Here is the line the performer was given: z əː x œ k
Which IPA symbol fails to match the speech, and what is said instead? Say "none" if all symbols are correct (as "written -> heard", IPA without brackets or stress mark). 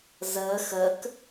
œ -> ə